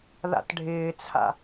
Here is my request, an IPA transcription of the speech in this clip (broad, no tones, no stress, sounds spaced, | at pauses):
ð a̰ t ɖʱ ɪː t͡sʰ a̰